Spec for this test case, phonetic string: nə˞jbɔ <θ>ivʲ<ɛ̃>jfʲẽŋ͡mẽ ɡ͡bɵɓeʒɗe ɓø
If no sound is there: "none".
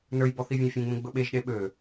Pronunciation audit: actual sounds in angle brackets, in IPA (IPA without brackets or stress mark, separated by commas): θ, ə̃